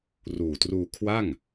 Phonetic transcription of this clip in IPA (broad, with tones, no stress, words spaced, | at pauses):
ruː˨˩truː˧ kʰwa˥˩ŋ